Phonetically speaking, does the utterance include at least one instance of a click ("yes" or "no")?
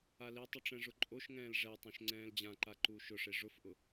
yes